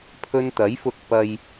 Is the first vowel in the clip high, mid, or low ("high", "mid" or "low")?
mid